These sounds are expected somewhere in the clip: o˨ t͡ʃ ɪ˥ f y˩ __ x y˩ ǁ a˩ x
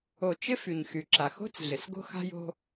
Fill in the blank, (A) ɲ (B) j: A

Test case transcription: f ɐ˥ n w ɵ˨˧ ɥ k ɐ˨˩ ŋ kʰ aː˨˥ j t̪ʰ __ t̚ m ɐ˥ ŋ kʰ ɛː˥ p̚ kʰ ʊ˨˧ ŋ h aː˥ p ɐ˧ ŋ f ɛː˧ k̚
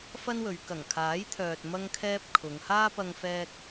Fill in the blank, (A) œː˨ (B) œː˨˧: A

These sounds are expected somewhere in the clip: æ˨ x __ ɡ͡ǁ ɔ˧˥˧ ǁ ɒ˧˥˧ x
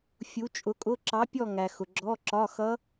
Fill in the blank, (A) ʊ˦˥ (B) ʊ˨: B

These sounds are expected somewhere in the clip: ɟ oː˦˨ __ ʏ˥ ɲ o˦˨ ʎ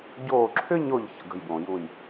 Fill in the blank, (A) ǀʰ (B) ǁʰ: B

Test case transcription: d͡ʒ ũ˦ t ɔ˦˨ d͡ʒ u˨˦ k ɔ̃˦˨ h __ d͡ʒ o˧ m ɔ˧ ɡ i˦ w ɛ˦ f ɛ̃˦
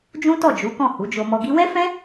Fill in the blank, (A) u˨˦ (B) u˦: A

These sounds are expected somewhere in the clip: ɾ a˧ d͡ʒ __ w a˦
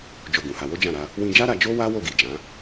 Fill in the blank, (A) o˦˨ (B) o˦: B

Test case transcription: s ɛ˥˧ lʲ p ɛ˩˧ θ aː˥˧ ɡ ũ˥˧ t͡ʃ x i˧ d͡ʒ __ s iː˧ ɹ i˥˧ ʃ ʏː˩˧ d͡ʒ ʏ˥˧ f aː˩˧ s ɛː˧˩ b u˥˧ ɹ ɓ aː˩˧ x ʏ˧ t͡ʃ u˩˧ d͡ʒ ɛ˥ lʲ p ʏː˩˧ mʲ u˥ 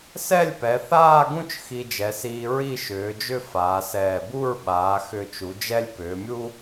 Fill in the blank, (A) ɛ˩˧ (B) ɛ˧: A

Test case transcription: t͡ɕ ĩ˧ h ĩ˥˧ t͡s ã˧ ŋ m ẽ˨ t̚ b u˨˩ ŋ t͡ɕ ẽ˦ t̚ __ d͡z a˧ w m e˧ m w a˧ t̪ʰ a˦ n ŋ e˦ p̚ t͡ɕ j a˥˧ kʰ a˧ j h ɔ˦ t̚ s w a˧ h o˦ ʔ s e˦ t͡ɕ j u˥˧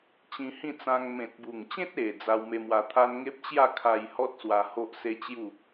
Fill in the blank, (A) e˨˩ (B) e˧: A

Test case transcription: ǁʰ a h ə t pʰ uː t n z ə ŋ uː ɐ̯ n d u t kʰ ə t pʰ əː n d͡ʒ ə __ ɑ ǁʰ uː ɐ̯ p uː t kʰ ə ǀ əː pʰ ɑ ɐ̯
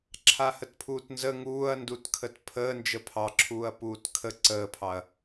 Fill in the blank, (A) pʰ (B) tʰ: A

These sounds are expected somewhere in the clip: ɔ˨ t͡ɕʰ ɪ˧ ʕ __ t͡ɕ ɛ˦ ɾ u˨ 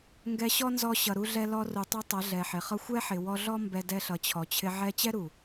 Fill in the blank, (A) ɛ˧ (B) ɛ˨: A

